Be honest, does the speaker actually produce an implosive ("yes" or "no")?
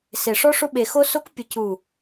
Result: yes